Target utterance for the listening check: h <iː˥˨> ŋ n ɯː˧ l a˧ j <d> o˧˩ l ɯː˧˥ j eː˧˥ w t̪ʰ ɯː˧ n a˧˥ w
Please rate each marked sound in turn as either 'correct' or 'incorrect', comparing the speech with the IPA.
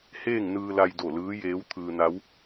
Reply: incorrect: eː˥˨, correct

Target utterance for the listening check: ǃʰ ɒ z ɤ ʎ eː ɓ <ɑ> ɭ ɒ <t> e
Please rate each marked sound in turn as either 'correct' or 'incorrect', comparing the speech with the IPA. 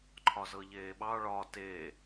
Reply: correct, correct

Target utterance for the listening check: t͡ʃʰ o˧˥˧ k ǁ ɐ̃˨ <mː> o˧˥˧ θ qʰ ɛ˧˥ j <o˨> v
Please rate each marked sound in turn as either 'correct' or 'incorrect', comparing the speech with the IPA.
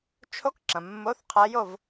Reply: correct, incorrect: o˥˧

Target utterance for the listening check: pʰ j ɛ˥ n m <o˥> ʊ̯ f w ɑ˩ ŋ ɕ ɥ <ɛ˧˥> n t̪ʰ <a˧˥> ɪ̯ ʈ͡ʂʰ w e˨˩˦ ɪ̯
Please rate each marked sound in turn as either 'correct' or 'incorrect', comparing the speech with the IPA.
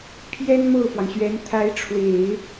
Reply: incorrect: o˥˩, correct, correct

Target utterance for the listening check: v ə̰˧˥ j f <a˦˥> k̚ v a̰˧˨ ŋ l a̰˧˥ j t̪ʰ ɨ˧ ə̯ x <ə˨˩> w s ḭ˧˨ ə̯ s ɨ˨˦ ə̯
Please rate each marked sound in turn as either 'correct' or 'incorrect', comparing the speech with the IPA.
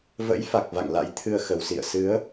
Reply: incorrect: a˨˩, correct

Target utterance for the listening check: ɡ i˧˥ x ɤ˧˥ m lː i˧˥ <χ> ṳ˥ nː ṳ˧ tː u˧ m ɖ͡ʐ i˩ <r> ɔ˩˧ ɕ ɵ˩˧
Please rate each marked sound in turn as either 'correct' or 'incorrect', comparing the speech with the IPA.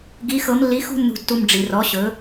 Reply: incorrect: x, correct

